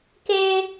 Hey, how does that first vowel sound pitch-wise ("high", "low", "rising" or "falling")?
high